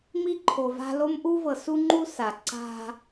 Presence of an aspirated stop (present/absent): present